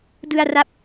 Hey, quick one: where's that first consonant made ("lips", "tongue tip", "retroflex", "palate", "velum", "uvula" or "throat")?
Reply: tongue tip